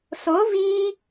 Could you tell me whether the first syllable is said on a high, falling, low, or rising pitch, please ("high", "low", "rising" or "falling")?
rising